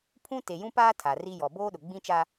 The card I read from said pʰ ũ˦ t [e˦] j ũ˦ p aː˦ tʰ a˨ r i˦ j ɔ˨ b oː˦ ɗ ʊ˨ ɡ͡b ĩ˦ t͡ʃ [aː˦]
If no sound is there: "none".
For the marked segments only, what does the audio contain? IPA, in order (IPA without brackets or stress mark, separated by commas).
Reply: e˨, a˦